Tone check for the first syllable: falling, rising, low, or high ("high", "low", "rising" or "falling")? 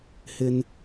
high